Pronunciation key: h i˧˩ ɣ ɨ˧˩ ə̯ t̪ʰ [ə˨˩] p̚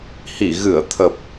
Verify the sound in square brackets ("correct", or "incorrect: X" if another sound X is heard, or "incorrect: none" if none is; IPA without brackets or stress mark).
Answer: correct